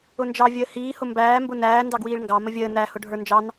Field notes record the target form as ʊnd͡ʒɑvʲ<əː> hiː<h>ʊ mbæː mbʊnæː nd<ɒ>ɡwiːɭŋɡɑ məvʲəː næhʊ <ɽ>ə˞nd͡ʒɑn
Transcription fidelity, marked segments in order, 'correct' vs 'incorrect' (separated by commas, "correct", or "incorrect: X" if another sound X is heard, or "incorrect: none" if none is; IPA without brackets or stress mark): correct, correct, incorrect: ɑ, incorrect: ɖʱ